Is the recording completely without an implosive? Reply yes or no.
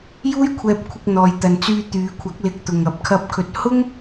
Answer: yes